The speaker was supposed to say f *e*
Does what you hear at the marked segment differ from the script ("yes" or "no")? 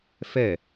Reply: yes